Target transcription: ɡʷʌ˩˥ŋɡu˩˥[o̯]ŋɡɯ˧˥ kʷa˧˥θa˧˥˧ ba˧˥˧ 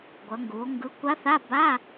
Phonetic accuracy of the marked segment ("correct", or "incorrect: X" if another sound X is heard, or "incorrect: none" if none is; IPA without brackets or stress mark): correct